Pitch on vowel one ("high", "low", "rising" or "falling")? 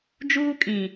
high